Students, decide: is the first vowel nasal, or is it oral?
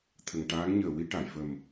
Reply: oral